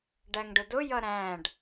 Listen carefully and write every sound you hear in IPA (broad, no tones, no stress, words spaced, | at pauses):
ɖæŋɖʊdʊ jʌɾæ̃ɖ